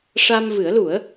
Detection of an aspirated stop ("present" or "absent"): absent